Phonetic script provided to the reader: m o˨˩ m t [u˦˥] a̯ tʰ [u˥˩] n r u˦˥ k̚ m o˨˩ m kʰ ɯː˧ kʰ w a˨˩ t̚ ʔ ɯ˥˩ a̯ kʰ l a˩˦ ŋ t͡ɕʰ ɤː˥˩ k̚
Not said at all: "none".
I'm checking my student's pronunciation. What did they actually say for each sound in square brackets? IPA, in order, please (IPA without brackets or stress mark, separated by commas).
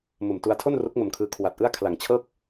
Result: u˧, o˥˩